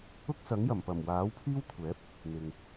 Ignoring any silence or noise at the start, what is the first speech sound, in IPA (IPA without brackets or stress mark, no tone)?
ʊ